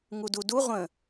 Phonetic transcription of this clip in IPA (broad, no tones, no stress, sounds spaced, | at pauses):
ŋ u d u d u ʁʷ ə̃